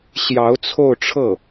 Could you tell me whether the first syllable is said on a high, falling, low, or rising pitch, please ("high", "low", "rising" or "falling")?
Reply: rising